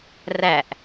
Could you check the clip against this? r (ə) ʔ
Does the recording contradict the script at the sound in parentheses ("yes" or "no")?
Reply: yes